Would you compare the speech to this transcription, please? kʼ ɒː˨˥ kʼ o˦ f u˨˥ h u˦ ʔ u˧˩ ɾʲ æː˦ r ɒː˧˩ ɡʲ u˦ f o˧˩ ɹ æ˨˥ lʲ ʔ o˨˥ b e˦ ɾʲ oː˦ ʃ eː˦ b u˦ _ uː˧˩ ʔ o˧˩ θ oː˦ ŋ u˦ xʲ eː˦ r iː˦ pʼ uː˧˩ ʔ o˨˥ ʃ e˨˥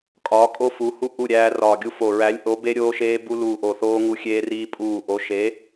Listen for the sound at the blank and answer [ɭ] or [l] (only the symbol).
l